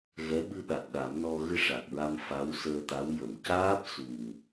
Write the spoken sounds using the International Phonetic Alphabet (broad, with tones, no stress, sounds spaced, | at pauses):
ɣ ɛ˧˥ ɓ ɨ˧ ɗ a˨˩ t̚ ɗ a˨˩˦ m n ɔ˧ ɣ ɨ˧ ʂ a˨˩ k̚ ɹ a˧ m f a˧˥ w s əː˧ t̪ a˧˥ w j ə˨˩˨ m c aː˦˥ p̚ s u˨˩ ŋ